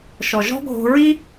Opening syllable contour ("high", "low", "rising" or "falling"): low